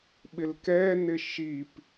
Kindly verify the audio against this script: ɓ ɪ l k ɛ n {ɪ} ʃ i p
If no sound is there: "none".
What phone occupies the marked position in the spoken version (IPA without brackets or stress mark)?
ɪ